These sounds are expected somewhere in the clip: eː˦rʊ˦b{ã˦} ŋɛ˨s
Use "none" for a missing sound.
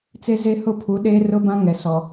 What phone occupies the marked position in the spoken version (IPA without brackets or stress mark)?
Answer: ã˦